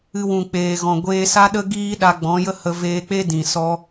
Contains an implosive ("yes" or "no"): yes